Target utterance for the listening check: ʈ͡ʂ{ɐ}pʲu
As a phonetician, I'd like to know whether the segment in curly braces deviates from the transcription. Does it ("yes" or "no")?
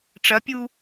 no